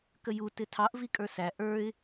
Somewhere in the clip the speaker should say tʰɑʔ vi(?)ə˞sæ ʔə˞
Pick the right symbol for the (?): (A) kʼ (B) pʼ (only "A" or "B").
A